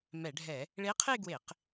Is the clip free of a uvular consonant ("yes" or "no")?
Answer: no